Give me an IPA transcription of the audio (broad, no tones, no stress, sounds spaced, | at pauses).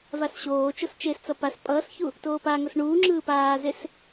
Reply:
v a s ɕ oː t͡ʃ o s t͡ʃ e s t͡s ʌ p a s pʼ ʌː s ç u | t oː p a ŋ o s ɳ uː ŋ͡ǁ ɯː p aː z e s